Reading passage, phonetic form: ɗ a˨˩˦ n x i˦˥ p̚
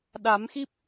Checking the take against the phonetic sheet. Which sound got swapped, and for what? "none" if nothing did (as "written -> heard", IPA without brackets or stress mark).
n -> m